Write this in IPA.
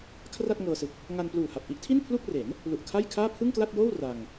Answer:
kʰ r a˥˩ t̚ ŋ ɤː˧ s ɯ˨˩ k̚ | ŋ a˧ n p l uː˨˩ h a˨˩ p̚ ʔ i˦˥ ʔ tʰ i˥˩ n pʰ l u˥˩ k̚ r e˩˦ n | l u˨˩ ʔ kʰ a˥˩ j kʰ aː˥˩ pʰ ɯ˥˩ ŋ k l a˥˩ t̚ j oː˥˩ w r a˧ ŋ

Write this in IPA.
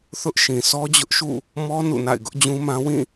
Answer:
θ ʊ˦ ʔ ʃ ĩ˨ sʰ ɔ˦ d͡ʑ ʊ˦ ʔ ʃ ṵ˦˨ | m ɔ˦ n ṵ˦˨ n a̰˦˨ ɪ̯ ɡ ʊ˦ ʔ d͡ʑ ũ˦ m ã˦ w ĩ˦˨

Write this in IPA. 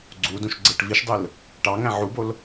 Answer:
ɡ͡ǀ u d ũ ʃ ɡ͡ǀ e ʈ v i ʃ dˤ ɯ l | ʈ ɑ ŋ æ̃ ʕ u b o l

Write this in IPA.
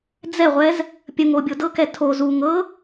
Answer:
d͡z ɛ ʁʷ ɛ z | pʲ ə ŋ o bʲ o d ɤ k ɛ tʰ o z u ŋ ɤ

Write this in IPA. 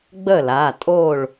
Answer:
ɡ͡b ə˥˨ l a˩˧˩ tʼ o˥˨ ɭ

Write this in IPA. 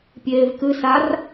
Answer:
pʲ eː v k ɨ s a r

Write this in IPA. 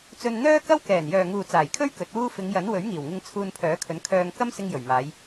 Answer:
t͡s ɵ˧ n n̪ œː˥ k ɐ˥ w k ɛː˨˩ n j œː˨ ŋ uː˨ t͡s aː˨˩ j kʰ ɵ˥ ɥ k ɵ˨˥ t̚ w uː˥ f ɪ˨˧ ŋ j ɐ˨˥ n w ɵ˨˥ ɥ ŋ iː˨˩ w ŋ ɪ˧ ŋ t͡sʰ uː˧ n pʰ œː˨˥ kʰ ɵ˨˥ n kʰ œː˧ ŋ k ɐ˥ m s ɪ˧ ŋ j ɵ˨˩ ɥ m aː˨˧ j

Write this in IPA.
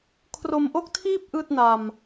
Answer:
kʰ r o˧ m ʔ o˥˩ k̚ tʰ iː˥˩ p̚ ʔ ɯː˥˩ t̚ n a˧ m

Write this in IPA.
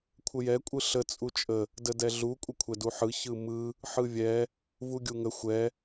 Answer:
kʷʰ ə j ɛ kʷʼ ɯ ɬ ə t͡sʼ u t͡ʃʼ ə | d ə d ɛ ɮ u kʷʼ ə kʷʰ ɛ d u ħ ɯ ç ɯ m ɯ | ħ ɯ vʲ ɛ | v u ɡʲ u ŋ ə xʷ ɛ

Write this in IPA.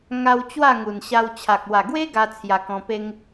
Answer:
ŋ a˧ w t͡ɕ w a˥˧ ŋ u˨˩ n ɕ a˧ w t͡ɕʰ a˨ k̚ w a˨˩ ɡ w e˦ ɡ a˦ t͡sʰ j a˧ k ɔ̃˧ p e˦ ŋ

